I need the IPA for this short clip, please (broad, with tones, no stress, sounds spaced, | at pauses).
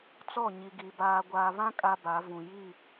t͡s ɔ˦˨ ɲ i˨ ɡ i˨ b aː˨ ɡʷ aː˨ β ã˦ kʼ a˦ b a˨˦ v ũ˨ j i˦˨